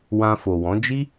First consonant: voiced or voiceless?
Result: voiced